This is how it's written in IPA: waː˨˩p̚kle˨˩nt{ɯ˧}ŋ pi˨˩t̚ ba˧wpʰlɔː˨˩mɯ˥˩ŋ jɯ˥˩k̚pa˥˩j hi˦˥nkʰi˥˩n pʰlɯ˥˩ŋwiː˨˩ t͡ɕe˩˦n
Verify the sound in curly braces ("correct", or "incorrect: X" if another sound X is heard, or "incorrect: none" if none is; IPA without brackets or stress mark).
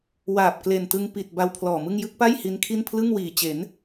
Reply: correct